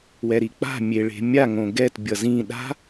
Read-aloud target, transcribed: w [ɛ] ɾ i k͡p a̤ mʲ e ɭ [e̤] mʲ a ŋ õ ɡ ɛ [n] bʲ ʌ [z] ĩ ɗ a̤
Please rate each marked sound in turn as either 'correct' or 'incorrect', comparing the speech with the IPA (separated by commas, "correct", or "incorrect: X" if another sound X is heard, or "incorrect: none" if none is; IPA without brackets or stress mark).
correct, correct, incorrect: t, correct